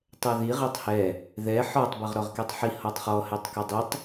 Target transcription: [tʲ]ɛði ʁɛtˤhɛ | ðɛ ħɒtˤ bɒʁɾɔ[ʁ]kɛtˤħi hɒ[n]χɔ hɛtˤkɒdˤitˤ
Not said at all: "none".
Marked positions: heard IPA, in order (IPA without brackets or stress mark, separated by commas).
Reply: tˤ, ʁ, tˤ